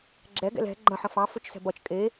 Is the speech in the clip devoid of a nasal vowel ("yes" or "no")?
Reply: no